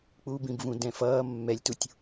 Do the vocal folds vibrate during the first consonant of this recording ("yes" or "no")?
no